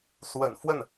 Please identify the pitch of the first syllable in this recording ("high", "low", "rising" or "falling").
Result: low